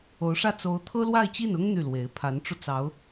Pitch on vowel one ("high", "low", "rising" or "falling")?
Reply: rising